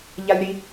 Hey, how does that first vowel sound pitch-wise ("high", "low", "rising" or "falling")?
high